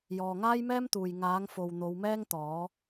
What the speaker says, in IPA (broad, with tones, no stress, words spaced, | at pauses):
jɔː˨ŋaː˥jmɛː˥mt̪uː˨j ŋaː˨˥ŋfo˨w n̪o˨˧wmɛː˥ŋt̪ɔː˨˥